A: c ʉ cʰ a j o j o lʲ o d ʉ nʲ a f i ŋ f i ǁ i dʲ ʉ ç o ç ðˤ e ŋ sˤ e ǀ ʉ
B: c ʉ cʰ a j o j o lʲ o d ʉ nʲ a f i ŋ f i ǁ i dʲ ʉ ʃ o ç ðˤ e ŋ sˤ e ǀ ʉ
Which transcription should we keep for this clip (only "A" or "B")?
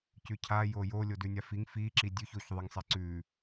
A